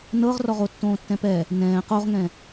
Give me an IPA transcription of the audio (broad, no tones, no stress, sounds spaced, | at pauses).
n ɤ ʁ r ɔ ʁ o tː õː tː ɛ̃ p ɛ | n ɛ̃ː q o ʁ ŋ ɛ̃